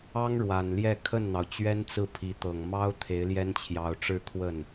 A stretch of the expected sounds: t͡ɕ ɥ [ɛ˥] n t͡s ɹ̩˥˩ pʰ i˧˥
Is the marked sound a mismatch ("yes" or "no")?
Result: no